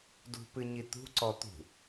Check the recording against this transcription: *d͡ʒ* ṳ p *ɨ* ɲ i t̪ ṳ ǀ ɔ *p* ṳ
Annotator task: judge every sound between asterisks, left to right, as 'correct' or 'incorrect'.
incorrect: d, correct, incorrect: t̪

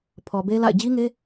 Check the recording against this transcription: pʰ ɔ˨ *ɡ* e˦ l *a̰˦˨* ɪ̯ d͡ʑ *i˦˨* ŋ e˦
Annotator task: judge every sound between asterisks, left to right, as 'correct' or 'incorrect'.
incorrect: b, correct, incorrect: i˦

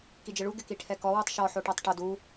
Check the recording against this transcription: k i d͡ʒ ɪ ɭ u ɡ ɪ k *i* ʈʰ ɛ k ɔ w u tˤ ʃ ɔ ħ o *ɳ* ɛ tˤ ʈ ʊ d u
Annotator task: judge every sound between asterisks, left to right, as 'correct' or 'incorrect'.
correct, incorrect: ʈ

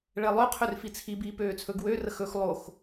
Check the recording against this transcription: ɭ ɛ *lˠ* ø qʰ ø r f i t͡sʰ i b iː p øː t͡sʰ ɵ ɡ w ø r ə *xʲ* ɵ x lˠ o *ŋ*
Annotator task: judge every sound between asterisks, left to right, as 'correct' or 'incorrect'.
correct, incorrect: x, incorrect: x

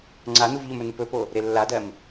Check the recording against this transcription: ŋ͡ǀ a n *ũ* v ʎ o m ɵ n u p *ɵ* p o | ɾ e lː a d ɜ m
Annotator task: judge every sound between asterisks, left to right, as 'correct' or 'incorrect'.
incorrect: u, correct

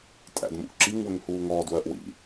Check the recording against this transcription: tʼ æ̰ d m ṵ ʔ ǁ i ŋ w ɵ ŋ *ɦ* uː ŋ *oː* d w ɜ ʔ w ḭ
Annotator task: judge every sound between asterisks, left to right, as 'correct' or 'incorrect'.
incorrect: h, incorrect: ɔː

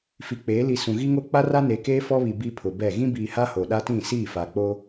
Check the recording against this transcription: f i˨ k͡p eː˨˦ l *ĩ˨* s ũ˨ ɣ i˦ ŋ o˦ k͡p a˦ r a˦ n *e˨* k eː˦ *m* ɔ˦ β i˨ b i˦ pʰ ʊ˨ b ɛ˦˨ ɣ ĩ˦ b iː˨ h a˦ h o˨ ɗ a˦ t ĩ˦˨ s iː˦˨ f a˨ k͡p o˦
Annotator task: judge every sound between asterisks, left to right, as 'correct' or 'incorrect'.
incorrect: i˨, correct, incorrect: f

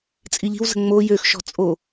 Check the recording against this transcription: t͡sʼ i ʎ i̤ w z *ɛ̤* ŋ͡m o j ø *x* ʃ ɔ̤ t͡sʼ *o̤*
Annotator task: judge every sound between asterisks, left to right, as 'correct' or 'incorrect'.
incorrect: ə̤, correct, incorrect: o

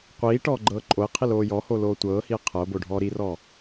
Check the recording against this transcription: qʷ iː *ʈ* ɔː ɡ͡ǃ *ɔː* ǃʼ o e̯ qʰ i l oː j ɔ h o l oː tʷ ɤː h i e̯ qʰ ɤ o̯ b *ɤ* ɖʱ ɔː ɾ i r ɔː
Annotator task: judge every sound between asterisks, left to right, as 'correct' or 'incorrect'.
correct, incorrect: ɤː, incorrect: o

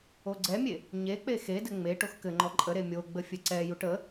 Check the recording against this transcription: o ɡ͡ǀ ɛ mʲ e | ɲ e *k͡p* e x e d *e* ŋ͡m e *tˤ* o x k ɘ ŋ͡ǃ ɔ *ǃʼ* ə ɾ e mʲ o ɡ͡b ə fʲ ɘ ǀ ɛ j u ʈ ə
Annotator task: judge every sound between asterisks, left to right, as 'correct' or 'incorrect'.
correct, incorrect: ɘ, incorrect: ʈ, correct

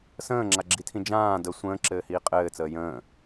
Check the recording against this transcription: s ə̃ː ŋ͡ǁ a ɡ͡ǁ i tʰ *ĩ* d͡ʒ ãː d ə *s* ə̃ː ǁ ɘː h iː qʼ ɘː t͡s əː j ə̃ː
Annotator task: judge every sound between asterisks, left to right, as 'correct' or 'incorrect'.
correct, incorrect: sʷ

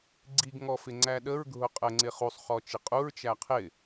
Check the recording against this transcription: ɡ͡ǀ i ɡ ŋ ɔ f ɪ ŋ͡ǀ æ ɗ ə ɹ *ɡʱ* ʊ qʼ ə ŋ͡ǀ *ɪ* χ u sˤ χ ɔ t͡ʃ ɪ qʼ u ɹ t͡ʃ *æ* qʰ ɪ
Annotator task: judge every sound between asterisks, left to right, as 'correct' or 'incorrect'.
correct, correct, correct

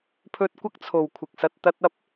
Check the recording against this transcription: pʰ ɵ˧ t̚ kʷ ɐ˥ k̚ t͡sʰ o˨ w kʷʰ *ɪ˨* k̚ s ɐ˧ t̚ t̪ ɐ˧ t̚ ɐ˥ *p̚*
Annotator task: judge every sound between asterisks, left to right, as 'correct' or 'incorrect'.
correct, correct

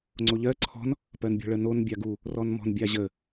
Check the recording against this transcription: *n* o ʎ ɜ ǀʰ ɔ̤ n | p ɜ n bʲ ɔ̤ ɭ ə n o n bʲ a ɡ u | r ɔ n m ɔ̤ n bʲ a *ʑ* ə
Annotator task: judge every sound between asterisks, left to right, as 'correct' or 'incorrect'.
incorrect: ŋ͡ǀ, correct

